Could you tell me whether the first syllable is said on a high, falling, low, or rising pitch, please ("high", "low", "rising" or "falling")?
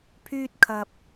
high